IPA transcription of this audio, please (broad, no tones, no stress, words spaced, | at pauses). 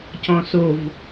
cɔ̃sov